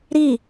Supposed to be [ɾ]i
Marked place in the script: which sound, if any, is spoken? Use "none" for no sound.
ɾ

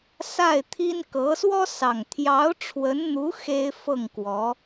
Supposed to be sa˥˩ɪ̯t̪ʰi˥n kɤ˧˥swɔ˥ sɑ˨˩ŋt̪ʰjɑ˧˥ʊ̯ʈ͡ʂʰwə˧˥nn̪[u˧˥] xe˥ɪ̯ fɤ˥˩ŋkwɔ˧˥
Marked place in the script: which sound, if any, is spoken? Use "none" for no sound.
u˧˥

